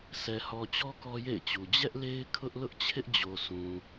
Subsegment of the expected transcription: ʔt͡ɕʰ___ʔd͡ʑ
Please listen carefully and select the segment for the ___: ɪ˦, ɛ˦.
ɪ˦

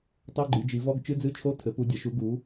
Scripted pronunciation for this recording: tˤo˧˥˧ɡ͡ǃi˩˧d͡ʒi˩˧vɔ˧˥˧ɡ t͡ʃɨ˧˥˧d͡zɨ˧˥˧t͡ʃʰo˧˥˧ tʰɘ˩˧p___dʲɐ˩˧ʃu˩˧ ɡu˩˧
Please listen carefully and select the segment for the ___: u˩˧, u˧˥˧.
u˩˧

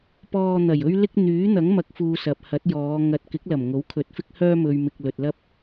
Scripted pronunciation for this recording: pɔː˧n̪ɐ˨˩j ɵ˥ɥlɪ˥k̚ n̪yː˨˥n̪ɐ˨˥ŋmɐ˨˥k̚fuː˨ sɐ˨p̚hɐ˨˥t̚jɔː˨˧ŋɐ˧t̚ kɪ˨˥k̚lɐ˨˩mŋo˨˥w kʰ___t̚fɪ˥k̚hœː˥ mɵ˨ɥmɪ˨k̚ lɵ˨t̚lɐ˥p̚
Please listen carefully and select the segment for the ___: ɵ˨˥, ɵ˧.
ɵ˨˥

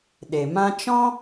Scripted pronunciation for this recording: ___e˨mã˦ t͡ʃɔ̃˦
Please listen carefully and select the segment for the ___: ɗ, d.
ɗ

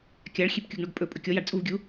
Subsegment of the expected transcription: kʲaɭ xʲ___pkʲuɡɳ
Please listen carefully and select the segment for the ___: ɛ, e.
e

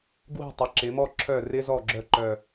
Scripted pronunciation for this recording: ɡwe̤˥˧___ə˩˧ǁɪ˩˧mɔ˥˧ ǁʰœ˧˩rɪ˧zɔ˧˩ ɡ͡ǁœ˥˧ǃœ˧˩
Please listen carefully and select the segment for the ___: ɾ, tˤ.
tˤ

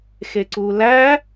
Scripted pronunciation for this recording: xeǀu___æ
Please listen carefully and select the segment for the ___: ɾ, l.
l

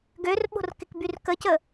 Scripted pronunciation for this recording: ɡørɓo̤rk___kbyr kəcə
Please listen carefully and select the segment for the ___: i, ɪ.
ɪ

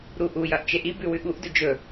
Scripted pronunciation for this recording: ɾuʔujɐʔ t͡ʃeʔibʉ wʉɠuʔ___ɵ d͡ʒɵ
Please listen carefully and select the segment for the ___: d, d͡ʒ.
d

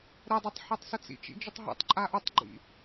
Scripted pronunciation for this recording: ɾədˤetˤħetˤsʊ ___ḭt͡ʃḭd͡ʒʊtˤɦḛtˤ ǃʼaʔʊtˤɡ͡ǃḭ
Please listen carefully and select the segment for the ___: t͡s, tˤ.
t͡s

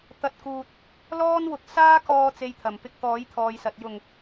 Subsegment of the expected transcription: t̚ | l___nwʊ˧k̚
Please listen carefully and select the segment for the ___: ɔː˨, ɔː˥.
ɔː˥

